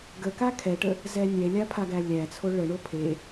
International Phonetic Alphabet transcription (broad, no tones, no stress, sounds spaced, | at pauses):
ɡ ə k a kʰ ɛ ʈ ə | z ɛ nʲ ɛ lʲ a pʰ a ɡ æ lʲ æ t͡sʰ o ɭ ə ɳ o pʰ e